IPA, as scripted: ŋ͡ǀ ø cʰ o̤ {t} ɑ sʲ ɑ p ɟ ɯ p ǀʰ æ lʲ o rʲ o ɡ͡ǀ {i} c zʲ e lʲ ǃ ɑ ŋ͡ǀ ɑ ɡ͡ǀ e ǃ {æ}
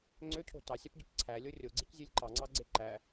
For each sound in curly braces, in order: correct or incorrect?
correct, correct, correct

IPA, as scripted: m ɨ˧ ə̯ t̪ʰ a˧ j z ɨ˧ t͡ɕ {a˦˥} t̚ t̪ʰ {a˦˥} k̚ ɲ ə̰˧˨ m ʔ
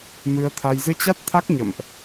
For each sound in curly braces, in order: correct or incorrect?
correct, correct

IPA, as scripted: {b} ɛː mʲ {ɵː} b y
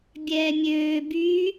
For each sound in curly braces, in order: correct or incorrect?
incorrect: bʲ, incorrect: øː

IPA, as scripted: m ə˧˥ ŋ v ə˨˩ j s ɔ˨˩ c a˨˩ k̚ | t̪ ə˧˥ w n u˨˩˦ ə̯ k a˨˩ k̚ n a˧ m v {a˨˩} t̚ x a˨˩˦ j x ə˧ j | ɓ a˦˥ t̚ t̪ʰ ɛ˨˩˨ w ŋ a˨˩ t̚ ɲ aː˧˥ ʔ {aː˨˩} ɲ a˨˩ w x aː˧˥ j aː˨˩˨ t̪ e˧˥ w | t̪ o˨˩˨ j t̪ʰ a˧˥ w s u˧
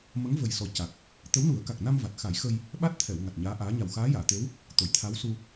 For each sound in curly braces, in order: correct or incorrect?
correct, incorrect: aː˧˥

